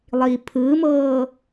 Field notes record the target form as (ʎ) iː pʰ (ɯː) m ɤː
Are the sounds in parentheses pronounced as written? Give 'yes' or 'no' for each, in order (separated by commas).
no, yes